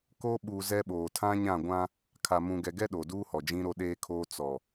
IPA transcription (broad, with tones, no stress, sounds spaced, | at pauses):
k o˦ ɓ u˨ z ɛ˦ ɓ oː˨ tʰ ã˦ ɲ ã˦˨ ɡʷ ã˦ | kʰ a˨ m ũ˨ ɡ ɛ˨ ɡ ɛ˦ ɗ o˨ d uː˦ h ɔ˨ d͡ʒ ĩ˦ ɾ o˦ ɗ eː˦ kʰ oː˦ t͡s ɔ˨